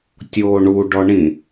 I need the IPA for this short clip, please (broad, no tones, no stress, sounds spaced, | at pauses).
tʲ oː ɳ u ɖ ɔ ɳ ĩ